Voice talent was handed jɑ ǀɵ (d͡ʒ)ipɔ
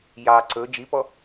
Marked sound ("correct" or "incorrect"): correct